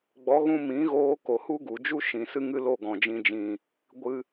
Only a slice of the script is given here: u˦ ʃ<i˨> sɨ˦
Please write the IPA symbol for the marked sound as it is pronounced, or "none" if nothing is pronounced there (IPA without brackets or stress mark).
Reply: ĩ˨